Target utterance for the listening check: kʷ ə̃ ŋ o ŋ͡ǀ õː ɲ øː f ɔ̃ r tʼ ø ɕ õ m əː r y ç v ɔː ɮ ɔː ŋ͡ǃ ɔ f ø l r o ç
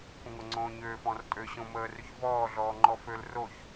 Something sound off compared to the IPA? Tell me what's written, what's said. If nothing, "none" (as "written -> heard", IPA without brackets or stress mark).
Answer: none